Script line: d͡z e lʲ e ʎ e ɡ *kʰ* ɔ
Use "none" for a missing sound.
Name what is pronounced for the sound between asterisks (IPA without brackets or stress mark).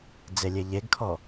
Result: kʰ